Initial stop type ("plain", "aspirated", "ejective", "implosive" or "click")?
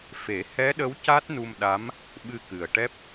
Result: implosive